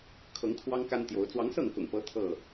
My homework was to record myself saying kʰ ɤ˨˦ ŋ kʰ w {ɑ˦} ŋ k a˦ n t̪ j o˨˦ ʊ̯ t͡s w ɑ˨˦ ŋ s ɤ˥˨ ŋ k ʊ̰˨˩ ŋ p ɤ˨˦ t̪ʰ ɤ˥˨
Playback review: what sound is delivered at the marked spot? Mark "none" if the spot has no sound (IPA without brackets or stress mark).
ɑ˦